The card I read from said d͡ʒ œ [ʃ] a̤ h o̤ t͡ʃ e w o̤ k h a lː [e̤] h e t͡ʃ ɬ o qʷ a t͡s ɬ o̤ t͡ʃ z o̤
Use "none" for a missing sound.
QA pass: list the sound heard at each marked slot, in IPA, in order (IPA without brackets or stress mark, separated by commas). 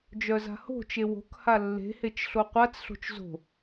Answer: z, e̤